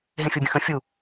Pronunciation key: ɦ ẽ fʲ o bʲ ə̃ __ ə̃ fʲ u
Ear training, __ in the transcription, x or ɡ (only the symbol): x